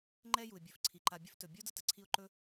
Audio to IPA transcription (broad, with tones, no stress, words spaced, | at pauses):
ŋ͡ǃɛ˥ju˩ɪ̯bʲɵ˩fǀʰi˩ ǃa˨bʲə˦ftɵ˩ bʲo˥də˦ tə˩ǀʰi˦ʊ̯ǃɵ˥